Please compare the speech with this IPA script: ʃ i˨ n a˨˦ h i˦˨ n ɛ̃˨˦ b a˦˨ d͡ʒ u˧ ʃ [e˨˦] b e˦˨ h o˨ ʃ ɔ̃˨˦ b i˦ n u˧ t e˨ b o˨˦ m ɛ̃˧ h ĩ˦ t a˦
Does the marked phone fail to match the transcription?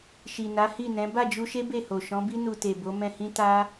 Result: yes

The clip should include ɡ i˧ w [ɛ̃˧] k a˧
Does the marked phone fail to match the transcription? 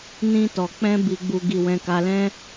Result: no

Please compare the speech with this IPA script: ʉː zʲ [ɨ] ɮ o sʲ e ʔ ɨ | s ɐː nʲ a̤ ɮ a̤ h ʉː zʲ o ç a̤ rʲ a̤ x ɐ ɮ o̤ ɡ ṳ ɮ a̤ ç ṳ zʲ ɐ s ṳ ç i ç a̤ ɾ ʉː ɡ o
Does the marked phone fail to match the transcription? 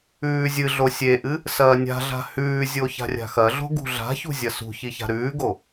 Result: no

